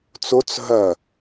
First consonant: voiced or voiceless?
voiceless